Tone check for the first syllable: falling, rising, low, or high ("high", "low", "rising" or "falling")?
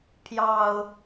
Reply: low